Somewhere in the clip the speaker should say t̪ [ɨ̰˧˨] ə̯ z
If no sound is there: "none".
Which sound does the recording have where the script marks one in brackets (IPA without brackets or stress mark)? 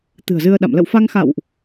ɨ̤˨˩